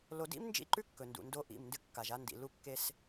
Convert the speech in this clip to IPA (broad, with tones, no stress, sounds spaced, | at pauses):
l o˨ d ḭ˦ m n d͡ʒ ḭ˦˨ ǃ ʉ˦ kː ɵ˨ n d ṵ˨ n d o˦ ʔ ḭ˦˨ m n d ɨ˦ kː a˨ ʒ a˦ n d ḭ˨ l u˦ kː e˦ s